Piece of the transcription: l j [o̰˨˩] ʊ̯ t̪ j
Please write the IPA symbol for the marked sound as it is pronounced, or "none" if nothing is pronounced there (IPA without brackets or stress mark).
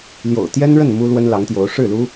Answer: o̰˨˩